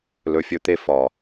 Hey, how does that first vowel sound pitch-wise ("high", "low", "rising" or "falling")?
low